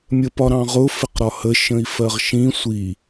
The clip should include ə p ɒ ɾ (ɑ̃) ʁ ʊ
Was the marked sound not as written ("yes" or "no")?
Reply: no